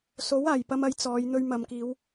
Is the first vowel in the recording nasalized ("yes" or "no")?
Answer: no